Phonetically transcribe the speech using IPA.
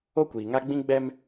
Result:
o˦kʷiː˨ŋa˦ ɡ͡bĩ˦ɡ͡bɛ˦m

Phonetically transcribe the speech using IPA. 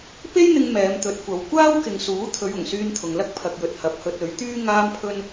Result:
pe˥jn̪ɪ˧ŋ mɛː˨˧mt̪ɵ˨˥t̚kʷɐ˨˧w kʷaː˥wkɪ˨ŋsuː˨˥ t̪ʰɵ˨˧ɥʊ˨˩ŋsyː˧n t̪ʰʊ˨ŋlɐ˥k̚ pʰɐ˧k̚jɵ˧t̚ hɐ˨p̚hɵ˧t̚ ɵ˨˥ɥt̪yː˥ ŋaː˥mpʰɵ˥n

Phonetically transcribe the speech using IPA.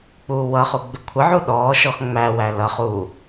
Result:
k͡puːwʌχu ɡ͡bɪkʷʰəʕu ɗɔːʃɔx ŋ͡mæwæ lʌχuː

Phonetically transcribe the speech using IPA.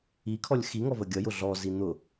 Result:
ikʰɔlʲ xiŋɔvə ɡʲʌjʊ ɮɔzi n̪ʊ

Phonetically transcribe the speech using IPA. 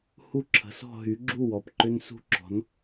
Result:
hu˥˧ǁʰə̤˨˥sɔ̤˥˧ ɦy˨˥ɡ͡ǁu˥˧wɔ˩˧p ǃʏ˥nsṳ˥ǁɔ̤˨˥n

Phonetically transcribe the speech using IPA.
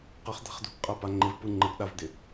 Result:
qəχd̪a̤χ d̪ṳɡqʼa paŋ͡ǃɪvpɯ ŋ͡ǃəɡɗavd̪ɪ

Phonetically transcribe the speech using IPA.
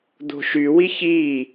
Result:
d̪o̤ʃy wiçiː

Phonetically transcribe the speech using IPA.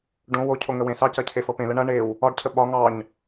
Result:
ɖõ wocʰo ŋəwẽsɑcɐ cʰefɤpẽlə ɳɐ ɳew | ɒɖcʰə ɓɒ ŋɑɲ

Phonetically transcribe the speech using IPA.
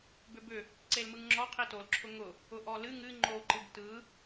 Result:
bʏbʏ | ǀelmɯŋŋ͡ǁɔ qʰitol ǁʰʊŋʊ | ʊʔɔlɨ ŋɨ ŋ͡ǃo ǃɨbtɯ

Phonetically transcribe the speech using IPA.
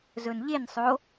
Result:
zɵnʎensˤo

